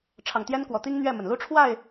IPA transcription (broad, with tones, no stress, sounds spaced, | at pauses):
ʈ͡ʂʰ ɑ˨˩ ŋ t̪ j ɛ˦ n k w ɔ˨˩ t̪ i˦ ŋ n̪ ɥ ɛ˥˨ m ə˩ n l u˦ ʈ͡ʂʰ w a˥˨ ɪ̯